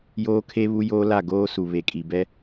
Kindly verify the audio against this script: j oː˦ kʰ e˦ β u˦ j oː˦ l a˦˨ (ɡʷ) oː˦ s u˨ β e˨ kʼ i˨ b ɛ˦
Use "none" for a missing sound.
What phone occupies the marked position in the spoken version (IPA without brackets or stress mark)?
ɡ